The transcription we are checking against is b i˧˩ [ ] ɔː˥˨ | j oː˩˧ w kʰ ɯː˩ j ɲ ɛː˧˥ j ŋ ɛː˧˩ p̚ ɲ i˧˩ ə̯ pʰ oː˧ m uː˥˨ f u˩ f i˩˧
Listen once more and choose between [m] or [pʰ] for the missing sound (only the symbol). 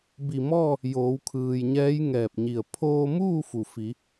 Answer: m